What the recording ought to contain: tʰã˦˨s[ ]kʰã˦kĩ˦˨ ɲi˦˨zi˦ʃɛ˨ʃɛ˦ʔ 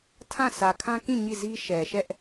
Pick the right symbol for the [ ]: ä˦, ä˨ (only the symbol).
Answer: ä˨